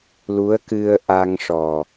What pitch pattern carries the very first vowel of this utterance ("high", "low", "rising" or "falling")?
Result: rising